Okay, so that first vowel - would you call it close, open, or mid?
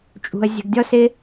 close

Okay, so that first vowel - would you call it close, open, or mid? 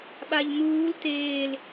open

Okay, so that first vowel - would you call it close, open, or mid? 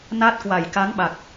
open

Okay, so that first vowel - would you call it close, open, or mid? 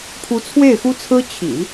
close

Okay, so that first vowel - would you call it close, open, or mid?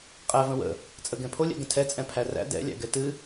open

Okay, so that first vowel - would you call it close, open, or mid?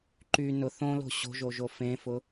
close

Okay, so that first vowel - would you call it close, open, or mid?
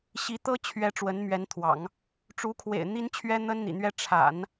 close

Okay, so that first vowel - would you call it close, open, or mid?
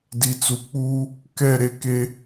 close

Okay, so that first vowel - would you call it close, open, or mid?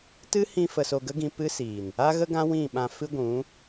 close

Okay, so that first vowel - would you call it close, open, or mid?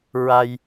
open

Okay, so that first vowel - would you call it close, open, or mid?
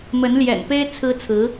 mid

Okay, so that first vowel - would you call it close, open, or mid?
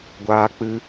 open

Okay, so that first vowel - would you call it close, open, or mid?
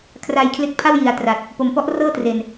open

